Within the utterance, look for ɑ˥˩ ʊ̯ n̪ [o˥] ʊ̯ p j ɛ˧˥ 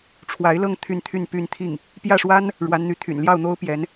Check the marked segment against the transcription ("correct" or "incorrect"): correct